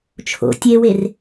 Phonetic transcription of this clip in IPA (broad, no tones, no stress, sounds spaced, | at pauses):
t͡ʃʰ o̰ tʲ e w e r